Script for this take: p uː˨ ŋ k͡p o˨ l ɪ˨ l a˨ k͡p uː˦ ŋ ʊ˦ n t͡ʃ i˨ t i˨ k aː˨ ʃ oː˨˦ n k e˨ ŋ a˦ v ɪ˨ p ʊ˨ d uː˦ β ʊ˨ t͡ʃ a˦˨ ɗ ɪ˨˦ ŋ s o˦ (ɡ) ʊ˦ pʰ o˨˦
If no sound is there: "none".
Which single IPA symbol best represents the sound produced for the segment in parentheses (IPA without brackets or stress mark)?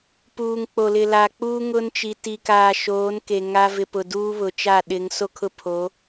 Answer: kʰ